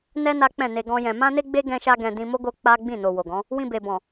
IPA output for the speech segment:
n ɛ˦ n a˦ k͡p ɛ̃˦˨ n e˧ ɡ ɔ̃˦ j ɛ̃˧ m ã˦ n e˦ ɡ͡b e˦ ɡ ɛ̃˦ ʃ a˦ ɡ ɛ̃˧ d ĩ˧ m o˦ ɡ o˦ k͡p a˦ ɡ͡b ĩ˦˨ n o˨ w o˨ ɡ ɔ̃˨˦ | w ĩ˧ b e˨ b ɔ̃˨

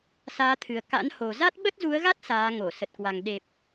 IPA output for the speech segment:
s aː˨˦ t̪ʰ ɨ˨˩ ə̯ k a̰˧˥ n h o˨˩ z a˦˥ t̚ ɓ ə˦˥ t̚ z u˨˦ ə̯ ɣ a˦˥ t̚ s aː˨˦ ŋ o˧˩ s ə˨˩ t̚ k w a˨˩ ŋ ɗ e˨˩ p̚

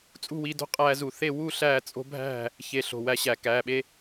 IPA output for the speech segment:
t͡sʼ ṳ˥˨ w iː˧ d o̤˦˥ qʼ æː˧ z u˧˩˧ θ e˥˨ w u˥˨ ɬ æː˥˨ t͡sʼ o̤˦˥ bʱ æ̤˥˨ | ç e˧ ɬ o̤˩˧˩ w æ˧ ɕ æ˧˩˧ k æː˩˧˩ ɓ e˦˥

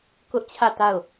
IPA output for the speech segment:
k ʊ˦ ʔ t͡ɕʰ ä˦˨ t a˦˨ ʊ̯

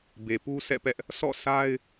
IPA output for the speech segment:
b e˨ p u˦ sʰ ɛ̰˦˨ p ɛ˦ ʔ | sʰ ɔ̰˦˨ sʰ a˦ ɪ̯

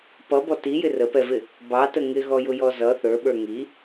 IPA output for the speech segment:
p ʌ b ɔ t i j ɪ r ə p ɛ v ɪ | b ɑ t ə ŋ ɪ ɣ ɔ j ʊ j ɔ z ʌ θ ə˞ ɓ ə˞ ŋ i

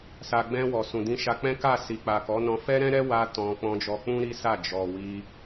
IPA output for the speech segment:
s a˨ ɡ͡b ɛ̃˧ w ɔ˨ s ũ˨ d ĩ˧ ʃ a˧ k͡p ɛ̃˦ k a˦˨ s i˨ k͡p a˨ k ɔ˨˦ n ɔ̃˧ f ɛ˦ ɾ ɛ̃˦ ɾ ɛ˦ w a˧ t ɔ̃˧ k͡p ɔ̃˧ d͡ʒ ɔ˧ k͡p ũ˦ ɾ i˦ s a˦˨ d͡ʒ ɔ˨ w i˧

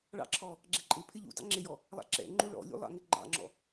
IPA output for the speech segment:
ɭ ɑ̰ ǁʰ ɔ | ɡ͡ǁ ɛ ǃʼ ɪ pʰ ɪ ʎ ṵ d ɑ̰ ŋ͡ǁ ɪ j ɔ | lˠ ɑ̰ ǁ ɛ̰ ŋ͡ǃ u ɭ ɔ̰ lʲ ṵ lˠ ɑ̰ ŋ ɪ ɡ͡ǃ ɑ̰ ŋ͡ǁ ɔ̰

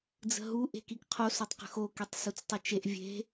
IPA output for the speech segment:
d͡z ə̤ ɦ u ʔ e̤ k i k qʰ o s o tˤ q ə̤ x o k i tˤ s u t͡s tˤ u t͡ʃ e ʔ vʲ e̤

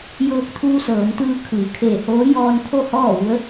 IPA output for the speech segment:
j ɤː˧ k̚ t̪ʰ uː˧ s ɤː˩˧ m t̪ ɯː˧ kʰ ɯː˩˧ kʰ eː˧˩ h oː˧˥ j ɔː˧ n kʰ o˥˨ h ɔː˥˨ ʋ u˧˥ ə̯

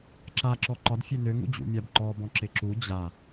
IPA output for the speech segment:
ǁ a ǁ ɔ ǃ ɒ d fʲ ø n ø ŋ ṵ d͡ʑ ṵ mʲ a b ǃ ɔ b ɔ̃ ǁ ɪ ǁ u d͡ʑ a

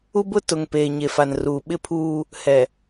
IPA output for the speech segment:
u˦ b ʊ˦ t ʊ˨ ŋ p eː˨ ɲ e˨ f a˨ n r uː˨ ɓ ɪ˦ pʰ uː˦ | h ɛ˨

